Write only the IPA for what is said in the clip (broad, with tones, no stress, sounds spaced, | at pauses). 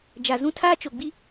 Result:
d͡ʒ a˨ z ũ˦ tʰ aː˦ t͡ʃ o˨ ɡ͡b i˦